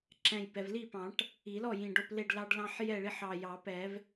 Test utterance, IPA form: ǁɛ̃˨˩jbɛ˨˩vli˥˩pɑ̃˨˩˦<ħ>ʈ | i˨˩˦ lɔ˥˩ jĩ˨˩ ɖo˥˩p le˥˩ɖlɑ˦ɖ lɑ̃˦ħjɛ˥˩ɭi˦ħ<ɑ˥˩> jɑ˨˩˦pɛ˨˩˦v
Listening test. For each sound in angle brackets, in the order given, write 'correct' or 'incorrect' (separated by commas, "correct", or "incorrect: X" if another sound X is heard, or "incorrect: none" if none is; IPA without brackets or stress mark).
incorrect: none, incorrect: ɑ˨˩